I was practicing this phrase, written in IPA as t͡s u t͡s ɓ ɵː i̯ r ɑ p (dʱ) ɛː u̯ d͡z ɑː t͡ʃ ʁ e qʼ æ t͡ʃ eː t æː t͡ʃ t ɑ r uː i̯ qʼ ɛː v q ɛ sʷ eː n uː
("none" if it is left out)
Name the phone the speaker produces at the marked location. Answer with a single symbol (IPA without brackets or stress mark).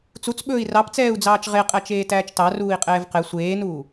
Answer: t͡s